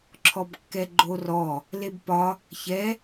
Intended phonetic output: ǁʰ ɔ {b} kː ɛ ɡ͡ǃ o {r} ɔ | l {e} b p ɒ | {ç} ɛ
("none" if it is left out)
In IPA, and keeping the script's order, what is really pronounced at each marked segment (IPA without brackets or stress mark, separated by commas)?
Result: b, r, e, ç